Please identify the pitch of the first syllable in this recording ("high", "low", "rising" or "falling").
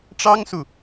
high